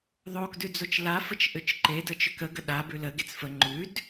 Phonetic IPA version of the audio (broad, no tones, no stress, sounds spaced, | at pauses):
ðˤ o k d ʉ d͡z o t͡ʃ l a f ə t͡ʃ ʔ ʏ t͡ʃ ǃ e d ə t͡ʃ ʏ k ə ɡ ə ɗ a b ʉ l ə ɡ e t͡s f ə ŋ͡ǃ ʉ d